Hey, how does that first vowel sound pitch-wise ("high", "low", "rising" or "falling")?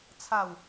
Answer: falling